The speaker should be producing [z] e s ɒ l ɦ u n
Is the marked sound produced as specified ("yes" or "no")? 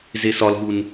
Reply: yes